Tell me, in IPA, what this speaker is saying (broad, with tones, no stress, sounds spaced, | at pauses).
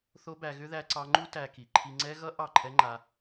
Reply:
θ o˦ b æ˧ ɣ ʏ˦ ð æ˦ ǀ ɑ˦ ŋ͡ǃ u˦ t æ˧ k i˨ ǃʰ i˧ ŋ͡ǀ ɛ˦ ɣ ʌ˦ ʔ ɑ˦˨ ǃʰ ɛ˦ ŋ͡ǃ a˧